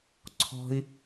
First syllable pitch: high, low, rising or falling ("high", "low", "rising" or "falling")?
high